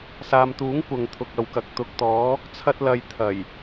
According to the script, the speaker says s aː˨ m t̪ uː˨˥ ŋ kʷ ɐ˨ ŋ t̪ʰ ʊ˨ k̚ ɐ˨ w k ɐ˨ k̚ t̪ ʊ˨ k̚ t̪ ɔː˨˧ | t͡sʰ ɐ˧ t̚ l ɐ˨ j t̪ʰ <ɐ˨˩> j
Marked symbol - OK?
yes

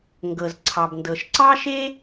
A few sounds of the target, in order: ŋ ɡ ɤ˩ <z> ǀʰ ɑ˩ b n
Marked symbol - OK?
yes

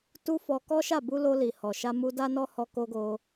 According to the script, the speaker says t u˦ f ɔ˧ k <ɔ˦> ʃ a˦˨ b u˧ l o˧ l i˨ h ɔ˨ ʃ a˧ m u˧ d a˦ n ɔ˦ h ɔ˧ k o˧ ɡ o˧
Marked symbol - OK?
yes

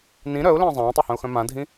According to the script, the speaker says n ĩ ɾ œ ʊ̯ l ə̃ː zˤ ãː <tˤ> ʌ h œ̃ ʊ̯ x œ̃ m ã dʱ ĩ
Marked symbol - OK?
yes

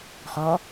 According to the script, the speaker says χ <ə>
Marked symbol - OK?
no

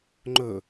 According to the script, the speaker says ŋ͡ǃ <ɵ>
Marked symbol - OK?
yes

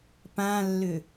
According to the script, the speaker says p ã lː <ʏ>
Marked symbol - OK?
yes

